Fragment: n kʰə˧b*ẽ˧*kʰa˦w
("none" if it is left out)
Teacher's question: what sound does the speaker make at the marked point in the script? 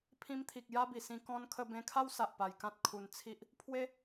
ẽ˧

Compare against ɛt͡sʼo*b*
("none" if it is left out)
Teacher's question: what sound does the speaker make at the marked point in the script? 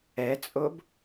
b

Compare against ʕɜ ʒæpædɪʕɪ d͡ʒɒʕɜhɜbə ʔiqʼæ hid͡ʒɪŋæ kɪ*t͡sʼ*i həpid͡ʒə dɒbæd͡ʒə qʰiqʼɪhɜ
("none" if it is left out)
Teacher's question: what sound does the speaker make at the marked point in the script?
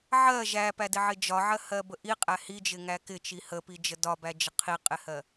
t͡ʃ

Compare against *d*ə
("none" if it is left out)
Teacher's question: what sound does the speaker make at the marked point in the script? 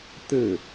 t̪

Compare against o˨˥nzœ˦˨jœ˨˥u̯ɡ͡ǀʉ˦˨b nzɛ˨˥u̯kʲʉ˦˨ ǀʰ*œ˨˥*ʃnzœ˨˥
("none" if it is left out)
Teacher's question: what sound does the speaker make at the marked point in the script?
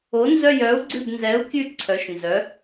œ˨˥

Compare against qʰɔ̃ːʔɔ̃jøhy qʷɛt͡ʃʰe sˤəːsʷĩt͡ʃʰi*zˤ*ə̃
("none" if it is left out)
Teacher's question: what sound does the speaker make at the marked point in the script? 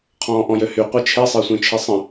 sˤ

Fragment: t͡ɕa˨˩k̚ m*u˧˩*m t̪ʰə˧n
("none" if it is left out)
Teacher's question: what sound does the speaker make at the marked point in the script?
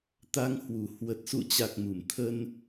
u˧˩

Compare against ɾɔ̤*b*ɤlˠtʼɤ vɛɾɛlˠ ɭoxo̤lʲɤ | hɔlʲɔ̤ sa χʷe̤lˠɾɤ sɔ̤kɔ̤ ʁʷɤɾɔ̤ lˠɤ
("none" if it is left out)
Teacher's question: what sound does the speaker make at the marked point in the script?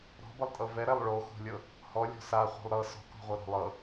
b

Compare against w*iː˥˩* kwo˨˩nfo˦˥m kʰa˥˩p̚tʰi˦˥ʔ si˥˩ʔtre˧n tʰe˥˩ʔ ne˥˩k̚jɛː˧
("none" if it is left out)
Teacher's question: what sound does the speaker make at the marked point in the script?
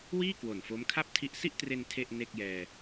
iː˥˩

